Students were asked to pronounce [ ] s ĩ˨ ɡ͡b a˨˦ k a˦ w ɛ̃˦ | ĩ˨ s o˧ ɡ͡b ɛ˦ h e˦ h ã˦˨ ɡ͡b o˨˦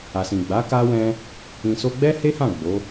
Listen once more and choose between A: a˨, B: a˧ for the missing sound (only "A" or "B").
A